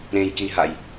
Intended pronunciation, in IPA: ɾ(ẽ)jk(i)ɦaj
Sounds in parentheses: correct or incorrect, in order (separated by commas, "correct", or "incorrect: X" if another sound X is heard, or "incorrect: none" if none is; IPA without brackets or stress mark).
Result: correct, correct